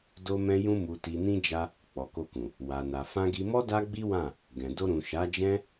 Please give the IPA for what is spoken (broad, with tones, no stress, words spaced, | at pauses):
do˧mɛ̃˧jũ˧ mu˨ti˨nĩ˧ d͡ʒa˧ | k͡pɔ˨ko˧kũ˨ | wa˨na˨ fã˧ɡi˧mɔ˦ da˦ɡ͡bi˦wã˦˨ | ɡɛ̃˨ do˧ɾũ˨ʃa˨˦d͡ʒɛ̃˦